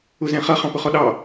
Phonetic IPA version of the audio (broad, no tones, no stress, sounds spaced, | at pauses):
ʊ z ɛ̃ χ ʌ χ ɑ̃ p ʊ χ ɔ ɗ ɑ